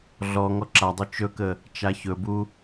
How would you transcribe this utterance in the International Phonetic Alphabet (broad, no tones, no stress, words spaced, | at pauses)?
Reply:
ɮɔ ŋɔǁadˤu t͡ʃɵkə | t͡ʃaçɵbu